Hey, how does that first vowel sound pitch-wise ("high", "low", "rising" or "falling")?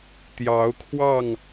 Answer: rising